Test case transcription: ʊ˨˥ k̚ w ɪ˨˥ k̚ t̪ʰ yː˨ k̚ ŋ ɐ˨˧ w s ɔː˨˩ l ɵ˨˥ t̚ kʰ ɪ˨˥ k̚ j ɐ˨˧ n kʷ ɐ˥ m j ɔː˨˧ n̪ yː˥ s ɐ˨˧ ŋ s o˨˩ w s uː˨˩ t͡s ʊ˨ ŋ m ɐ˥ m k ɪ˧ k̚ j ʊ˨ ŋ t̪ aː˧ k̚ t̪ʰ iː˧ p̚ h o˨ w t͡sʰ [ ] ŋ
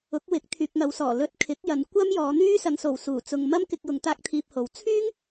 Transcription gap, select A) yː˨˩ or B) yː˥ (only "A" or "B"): B